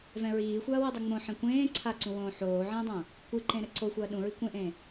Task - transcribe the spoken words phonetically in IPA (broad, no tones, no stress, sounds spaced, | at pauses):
v ɛ̃ ɹ iː xʷ ɐː w e dˤ ɛ ŋ͡m õ ħ ẽ kʷ ẽː ǀʰ a ǀ ũ w õː ħ oː ʕ ẽː dˤ õː | kʷ ɨ ǃ ẽ ɾ ɘ ǀ o xʷ ɐː ɗ ũ ɹ i kʷ ẽ ʔ ẽː